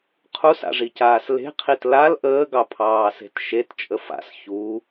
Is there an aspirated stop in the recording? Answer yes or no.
yes